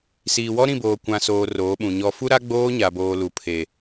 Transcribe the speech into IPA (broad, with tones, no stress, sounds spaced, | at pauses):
s iː˨ w ɔ˦ ɾ ĩ˦˨ b oː˨ kʷ ã˨ s oː˨ r oː˨˦ ɓ ũ˨ ɲ ɔ˨ f u˦ ɾ a˦ ɡ͡b oː˦ ɲ a˨ b oː˨ l u˨ pʰ e˨